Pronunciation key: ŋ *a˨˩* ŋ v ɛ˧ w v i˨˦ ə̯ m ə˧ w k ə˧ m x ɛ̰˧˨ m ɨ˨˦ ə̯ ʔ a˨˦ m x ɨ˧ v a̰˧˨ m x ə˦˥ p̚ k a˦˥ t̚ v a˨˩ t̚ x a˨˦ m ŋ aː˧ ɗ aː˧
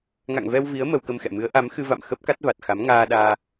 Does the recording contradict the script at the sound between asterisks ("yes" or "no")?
yes